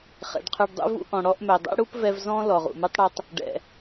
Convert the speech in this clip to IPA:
χ ɛ̰˨ ɖ qʰ ø˧ ɖ dˤ ṵ˦ v ṵ˦ ʔ ɔ̃˨ ɽ ɔ˧ ʔ m œ˨ dˤ ɛ̰˦ ɽ u˦ p v ɛ˧ v z ɔ̃˦ l ɔ˨ ʁ ṵ˨ m u˦ tˤ ɽ ɛ˦ tˤ | ɖ ɛ̰˨

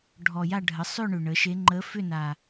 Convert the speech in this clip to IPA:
ɖʱ ɔ˨˩ j a˥˧ ɖʱ ə˩˥ sˤ ʏ˥˧ ɳ ʏ˨˩ ɳ ə˩˥ ʃ e˧˥ ŋ͡ǃ ə˧˥ f ʏ˥˧ n a˨˩

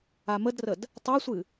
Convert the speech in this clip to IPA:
a m ə d r ə d | tˤ a sʷ ɨ

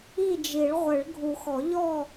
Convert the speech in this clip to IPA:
i˥˨ d͡ʒ i˨˩˦ ɭ ʁʷ ɘ˨˩˦ ɭ ɡʱ u˨˩˦ x ɔ˨˩˦ ʎ ɔ˥˨

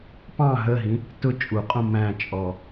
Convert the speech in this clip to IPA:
p ɑ̃ ɦ ə ɦ ĩ | t ʊ t͡ʃʼ u qʼ ũ m æ̃ t͡ʃʼ ɔ

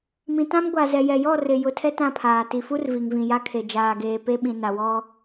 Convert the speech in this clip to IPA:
m ĩ˨ t ã˦ m ɡʷ a˨ z ɛ˨ j ɛ˨ j ɔ˦˨ r ɪ˨ j ʊ˨ tʰ ɛ˦ t ã˦˨ pʰ aː˨ t i˨ f u˦ r v i˨ ŋ v ĩ˨ j a˦ kʰ e˨ d͡ʒ aː˨ ɡ eː˨ p e˦ ɓ ĩ˨ n a˨ w ɔ˦

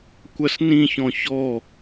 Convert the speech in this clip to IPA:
kʷ ɐ s n ĩ ç ɔ̃ ç ɔ

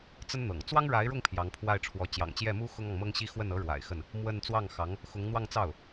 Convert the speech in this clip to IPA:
t͡s ə˥ n n̪ ɤ̰˨˩ ŋ t͡s w ɑ˥ ŋ ɻ a˧˥ ɪ̯ ɻ ʊ˥˩ ŋ pʰ j ɑ˧˥ ŋ pʰ w a˥˩ ɪ̯ ʈ͡ʂʰ w ɔ˧˥ t͡ɕ j ɑ̰˨˩ ŋ t͡ɕ j ɛ˥˩ m u˥ x ʊ˥ ŋ ɑ˨ ŋ m ɤ˥ ŋ ɕ i˥ x w ə˥˩ n ɤ˧˥ ɻ w a̰˨˩ ɪ̯ x ə˥˩ n | m w ə˥˧ n t͡s w ɑ˥˩ ŋ x ɑ˧˥ ŋ | x ʊ˧˥ ŋ n̪ w ɑ˥˧ ŋ t͡s ɑ˥˩ ʊ̯

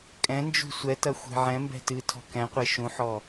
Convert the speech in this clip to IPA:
kʼ ɛ̃ n d͡ʒ ṳ sʷ ɛ t ɐ xʷ e̤ ʕ ɛ̃ m b ɛ̤ t ɨ tʰ ɔ̤ k ɛ̃ qʷ e ʃ ũ ħ ɔ

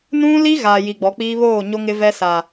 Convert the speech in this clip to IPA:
n ũ˦ l i˦ ɣ a˨ j i˨ ɡ͡b ɔ˨˦ k͡p iː˦ β oː˦˨ ɲ o˦ ŋ ɪ˦ v ɛ˦ s a˨

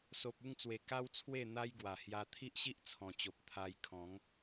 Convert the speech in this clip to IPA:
s o˨ p̚ u˥˧ ŋ t͡s w e˨˩ k a˦ w t͡sʰ w e˥˧ n̪ a˦ j ɡ w a˨˩ h j a˧ t̪ʰ i˦ ʔ ɕ i˦ ʔ t͡sʰ ɔ̃˨˩ t͡ɕ o˨ p̚ t̪ʰ a˧ j kʰ ɔ̃˨˦ ŋ

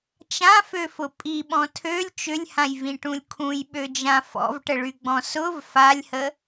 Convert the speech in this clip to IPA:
t͡ʃ ã f ø f ʊ pʼ i ɓ ɔ̃ tʰ ø lʲ t͡ʃ ʏ lʲ h ã j v ĩ ʈ ũ lʲ kʰ ũ j ɓ ø d͡ʒ ã f ɔ̰ v ʈ ə ɭ y ɡ͡b ɔ̃ s ʊ v f a lʲ h ə

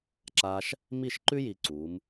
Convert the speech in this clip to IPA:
ǁ aː˧ ʃ | m i˥˩ ʃ ǃ ʉ˥ j iː˧ ǀ uː˩˥ m

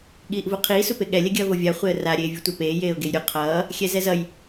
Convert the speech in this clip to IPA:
ɠ iː ʔ v u qʰ iː s u p e ɠ ɛ lʲ ɛ ɡʲ ʌː v o vʲ a χʷ e ə̯ r a ɾʲ eː vʲ u tʷ ɛ p eː j eː ʊ̯ ɡ e j ɾʲ u qʰ ʌː | xʲ ɛ z ɛ z ʌ j

